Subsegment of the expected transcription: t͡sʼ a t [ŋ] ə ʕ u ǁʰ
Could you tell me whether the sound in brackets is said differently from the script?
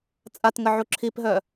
no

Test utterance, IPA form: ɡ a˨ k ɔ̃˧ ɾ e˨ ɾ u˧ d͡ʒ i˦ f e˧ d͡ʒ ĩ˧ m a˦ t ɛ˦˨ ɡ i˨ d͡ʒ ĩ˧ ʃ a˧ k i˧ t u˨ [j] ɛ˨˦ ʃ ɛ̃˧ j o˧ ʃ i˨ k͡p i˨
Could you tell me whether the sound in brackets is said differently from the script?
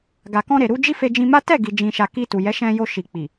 no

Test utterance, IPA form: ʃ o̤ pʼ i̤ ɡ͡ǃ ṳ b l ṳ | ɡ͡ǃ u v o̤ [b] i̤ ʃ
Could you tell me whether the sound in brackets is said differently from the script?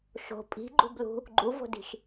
yes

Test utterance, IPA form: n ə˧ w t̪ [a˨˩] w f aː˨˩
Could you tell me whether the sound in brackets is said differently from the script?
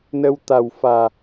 no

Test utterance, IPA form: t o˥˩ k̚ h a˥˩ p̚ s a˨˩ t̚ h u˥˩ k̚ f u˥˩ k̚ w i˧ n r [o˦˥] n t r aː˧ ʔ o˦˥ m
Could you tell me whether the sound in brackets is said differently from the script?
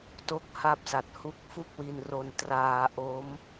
yes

